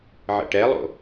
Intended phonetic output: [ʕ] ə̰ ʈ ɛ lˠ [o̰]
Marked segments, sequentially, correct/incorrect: correct, correct

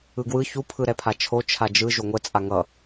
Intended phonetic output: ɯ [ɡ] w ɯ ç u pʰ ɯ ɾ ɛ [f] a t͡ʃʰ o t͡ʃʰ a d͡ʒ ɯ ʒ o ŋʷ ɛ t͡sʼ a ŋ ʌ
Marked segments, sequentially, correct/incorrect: correct, incorrect

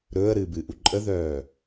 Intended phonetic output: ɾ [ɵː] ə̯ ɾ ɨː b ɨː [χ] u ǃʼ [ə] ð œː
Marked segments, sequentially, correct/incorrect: correct, incorrect, correct

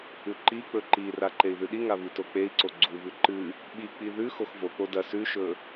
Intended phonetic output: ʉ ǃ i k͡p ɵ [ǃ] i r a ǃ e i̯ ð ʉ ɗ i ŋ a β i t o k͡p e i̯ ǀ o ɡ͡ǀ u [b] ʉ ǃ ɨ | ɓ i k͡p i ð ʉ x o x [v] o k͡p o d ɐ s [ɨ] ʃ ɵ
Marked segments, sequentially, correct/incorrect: correct, incorrect, correct, incorrect

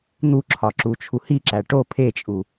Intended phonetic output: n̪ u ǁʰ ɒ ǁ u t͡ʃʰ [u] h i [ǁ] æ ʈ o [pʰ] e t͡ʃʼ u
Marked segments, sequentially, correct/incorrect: correct, correct, correct

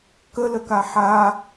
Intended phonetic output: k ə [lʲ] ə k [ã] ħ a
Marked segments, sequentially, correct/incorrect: incorrect, incorrect

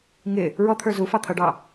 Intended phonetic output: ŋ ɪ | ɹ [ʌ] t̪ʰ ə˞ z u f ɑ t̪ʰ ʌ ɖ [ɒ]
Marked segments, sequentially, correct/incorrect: incorrect, incorrect

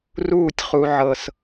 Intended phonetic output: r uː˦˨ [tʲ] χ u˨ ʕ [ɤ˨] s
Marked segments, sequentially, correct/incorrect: correct, correct

